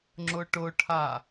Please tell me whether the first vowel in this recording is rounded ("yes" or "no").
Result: yes